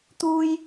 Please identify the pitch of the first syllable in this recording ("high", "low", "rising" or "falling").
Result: high